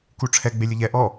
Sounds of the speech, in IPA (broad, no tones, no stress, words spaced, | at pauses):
kuʈ͡ʂʰɛ ɡ͡belʲəʎɛ ʔɔ